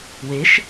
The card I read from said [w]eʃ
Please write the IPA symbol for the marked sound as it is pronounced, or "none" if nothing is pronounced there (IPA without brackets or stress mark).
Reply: w